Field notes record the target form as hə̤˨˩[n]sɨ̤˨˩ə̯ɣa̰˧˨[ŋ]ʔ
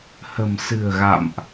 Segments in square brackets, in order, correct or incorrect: incorrect, incorrect

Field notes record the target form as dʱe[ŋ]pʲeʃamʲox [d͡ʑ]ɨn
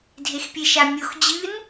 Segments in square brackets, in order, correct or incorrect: incorrect, correct

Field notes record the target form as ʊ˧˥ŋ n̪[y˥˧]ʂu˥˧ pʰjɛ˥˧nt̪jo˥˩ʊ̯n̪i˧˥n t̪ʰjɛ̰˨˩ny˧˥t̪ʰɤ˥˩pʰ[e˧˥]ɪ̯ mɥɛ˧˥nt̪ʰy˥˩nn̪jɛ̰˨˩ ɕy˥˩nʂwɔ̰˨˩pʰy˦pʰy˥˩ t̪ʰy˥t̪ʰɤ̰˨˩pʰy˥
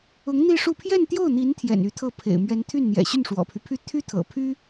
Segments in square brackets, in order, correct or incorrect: incorrect, incorrect

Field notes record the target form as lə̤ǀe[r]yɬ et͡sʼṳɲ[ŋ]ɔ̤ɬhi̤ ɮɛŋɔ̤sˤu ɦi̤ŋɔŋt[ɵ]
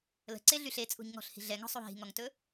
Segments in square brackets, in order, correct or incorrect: incorrect, correct, correct

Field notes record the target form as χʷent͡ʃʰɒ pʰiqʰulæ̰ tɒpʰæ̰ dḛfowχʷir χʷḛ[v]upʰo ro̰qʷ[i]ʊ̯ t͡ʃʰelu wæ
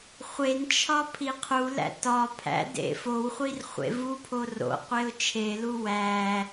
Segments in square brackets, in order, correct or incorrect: correct, incorrect

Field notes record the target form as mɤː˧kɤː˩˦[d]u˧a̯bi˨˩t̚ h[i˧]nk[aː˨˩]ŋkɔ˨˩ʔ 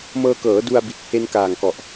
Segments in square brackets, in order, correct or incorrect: correct, incorrect, correct

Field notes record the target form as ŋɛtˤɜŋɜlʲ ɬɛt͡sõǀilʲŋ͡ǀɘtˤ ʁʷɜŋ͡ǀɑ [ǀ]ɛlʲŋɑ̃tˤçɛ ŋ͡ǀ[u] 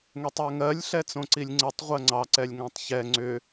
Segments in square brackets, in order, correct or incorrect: correct, incorrect

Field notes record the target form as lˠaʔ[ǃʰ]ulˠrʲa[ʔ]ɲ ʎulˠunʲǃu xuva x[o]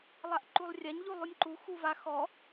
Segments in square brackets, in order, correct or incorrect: incorrect, incorrect, incorrect

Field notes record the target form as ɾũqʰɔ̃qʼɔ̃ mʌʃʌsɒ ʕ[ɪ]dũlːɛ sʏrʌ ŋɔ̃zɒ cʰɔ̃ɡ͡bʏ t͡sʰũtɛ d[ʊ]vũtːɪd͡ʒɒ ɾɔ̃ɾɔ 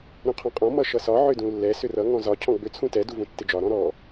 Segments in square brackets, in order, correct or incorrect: incorrect, incorrect

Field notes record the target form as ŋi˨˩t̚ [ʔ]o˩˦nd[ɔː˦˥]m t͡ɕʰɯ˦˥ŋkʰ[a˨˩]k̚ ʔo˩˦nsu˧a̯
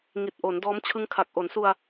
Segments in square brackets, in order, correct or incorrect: correct, correct, correct

